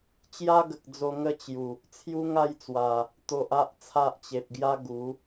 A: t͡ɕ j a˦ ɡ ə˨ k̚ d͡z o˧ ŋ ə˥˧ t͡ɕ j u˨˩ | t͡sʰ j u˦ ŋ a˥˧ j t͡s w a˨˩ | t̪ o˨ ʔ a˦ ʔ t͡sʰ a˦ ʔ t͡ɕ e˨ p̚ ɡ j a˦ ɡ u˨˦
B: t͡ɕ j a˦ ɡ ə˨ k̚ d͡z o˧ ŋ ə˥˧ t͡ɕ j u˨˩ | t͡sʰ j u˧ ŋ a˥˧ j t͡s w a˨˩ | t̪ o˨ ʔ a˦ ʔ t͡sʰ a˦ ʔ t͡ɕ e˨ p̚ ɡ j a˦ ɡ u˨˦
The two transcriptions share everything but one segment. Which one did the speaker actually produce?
A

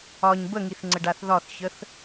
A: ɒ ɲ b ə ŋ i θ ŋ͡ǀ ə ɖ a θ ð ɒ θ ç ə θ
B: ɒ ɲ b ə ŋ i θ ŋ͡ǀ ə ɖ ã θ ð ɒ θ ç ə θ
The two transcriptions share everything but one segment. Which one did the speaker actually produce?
A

